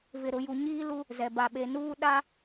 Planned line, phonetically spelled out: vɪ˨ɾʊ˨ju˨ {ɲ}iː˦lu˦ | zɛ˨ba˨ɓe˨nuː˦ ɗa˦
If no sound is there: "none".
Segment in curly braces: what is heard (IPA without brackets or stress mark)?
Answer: ɲ